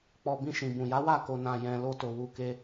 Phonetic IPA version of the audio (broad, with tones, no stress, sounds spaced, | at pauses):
k͡p ɔ˨ b ĩ˧ ʃ ĩ˨ b ũ˨ j a˨˦ w a˦˨ k o˨ n ã˨ j ɛ̃˨ l o˧ t o˨ w u˨ k e˧